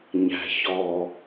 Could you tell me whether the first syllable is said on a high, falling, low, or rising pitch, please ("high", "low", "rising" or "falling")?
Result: low